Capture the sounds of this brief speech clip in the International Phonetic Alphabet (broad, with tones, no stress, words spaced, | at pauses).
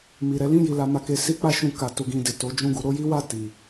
mi˨ ɾɛ˨˦lĩ˦˨ ji˨ la˧ma˧ke˧ si˦k͡pa˦ʃũ˧ ka˨ tu˧ɡĩ˧de˨ to˨˦d͡ʒũ˦˨ɡu˧ ɾo˦ji˦wa˦˨ ti˨